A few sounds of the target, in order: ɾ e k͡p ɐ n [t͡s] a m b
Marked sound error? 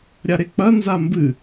yes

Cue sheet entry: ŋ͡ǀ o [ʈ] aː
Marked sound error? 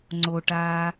no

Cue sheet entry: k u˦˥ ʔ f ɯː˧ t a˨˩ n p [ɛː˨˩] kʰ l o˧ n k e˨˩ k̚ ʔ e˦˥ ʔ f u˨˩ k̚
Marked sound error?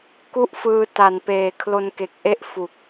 yes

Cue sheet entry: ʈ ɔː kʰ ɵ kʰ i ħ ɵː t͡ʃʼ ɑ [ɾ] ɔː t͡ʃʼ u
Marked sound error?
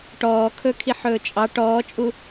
yes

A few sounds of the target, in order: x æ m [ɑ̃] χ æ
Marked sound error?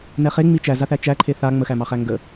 yes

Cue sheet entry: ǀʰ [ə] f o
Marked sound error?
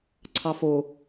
yes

